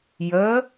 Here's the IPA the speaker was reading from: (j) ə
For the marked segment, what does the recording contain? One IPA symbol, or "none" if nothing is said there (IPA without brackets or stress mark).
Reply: j